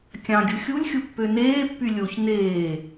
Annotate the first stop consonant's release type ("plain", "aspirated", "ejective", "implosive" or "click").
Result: plain